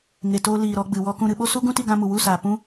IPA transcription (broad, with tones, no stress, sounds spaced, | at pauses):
ŋ e˨ t oː˧ l iː˨ ɾ ɔ˧ ɡ͡b ɨ˨ w ɔ˧ k ũ˧ ɾ ɨ˧ ɓ o˦ s u˦ ɡ ũ˦ t i˧ ɡ ã˧ m u˨ w u˦˨ s aː˨ p ũ˦